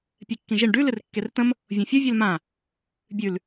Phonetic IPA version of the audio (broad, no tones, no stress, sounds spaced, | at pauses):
pʲ ɛ kː ĩ ʒ i ɳ ɖ ʉ l ɪ r kː e r t ə̃ m | vʲ õ fʲ o vʲ e l m ã | bʲ ʉ l